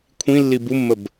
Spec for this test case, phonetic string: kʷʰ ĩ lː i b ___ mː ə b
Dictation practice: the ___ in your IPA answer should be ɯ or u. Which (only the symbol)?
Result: u